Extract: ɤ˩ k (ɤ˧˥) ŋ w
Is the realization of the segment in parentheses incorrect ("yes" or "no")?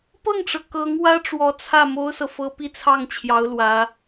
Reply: no